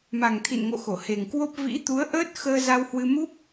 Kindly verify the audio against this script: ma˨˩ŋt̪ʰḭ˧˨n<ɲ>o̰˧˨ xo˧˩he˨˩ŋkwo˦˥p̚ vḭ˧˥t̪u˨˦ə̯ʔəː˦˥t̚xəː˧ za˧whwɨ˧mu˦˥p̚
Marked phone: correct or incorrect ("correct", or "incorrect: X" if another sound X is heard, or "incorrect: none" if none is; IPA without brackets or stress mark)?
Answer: incorrect: ŋ